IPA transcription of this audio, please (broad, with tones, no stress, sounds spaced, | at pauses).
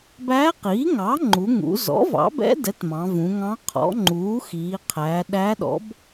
b æː˧˥ q iː˩˥ ŋ ɑ˩˥ ŋ͡ǃ u˩˧ ŋ ṵ˩˧ z ɔ̰˩˥ v ɑ̰˩˥ b ɛ̰˧˥ d ɛ˩˥ t m ɑ̃˩˧ v ũ˩˧ ŋ ɑ̃˧˥ qʰ ɔ̰˩˥ ŋ͡ǃ uː˩˥ x iː˩˧ qʰ æ˩˧ ɗ æ˧˥ ɗ ɔ̰˩˥ b